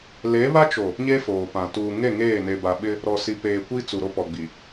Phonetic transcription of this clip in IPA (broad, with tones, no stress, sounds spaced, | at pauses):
l e˨˦ β a˦ t͡ʃ o˨ | ɲ e˦ f oː˨ p ã˨ t uː˨ ŋ e˦˨ ŋ eː˦˨ n e˨ b a˨ ɓ ɪ˦ | ɾ ɔ˨ s i˨ p eː˨ kʷ i˦ t͡s u˨ ɾ o˦ p ɔ˨ ɡ͡b i˨